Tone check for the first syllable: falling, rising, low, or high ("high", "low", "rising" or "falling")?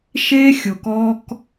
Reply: high